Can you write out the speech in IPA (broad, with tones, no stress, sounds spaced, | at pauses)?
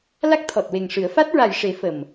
l a˦˥ k̚ t̪ʰ ɔ˨˩ t̚ w e˨˩ ŋ ʂ ɨ˨˩˦ ə̯ f a˦˥ t̚ ɹ a˨˩ j ʂ e˨˩˦ f ə˨˩ m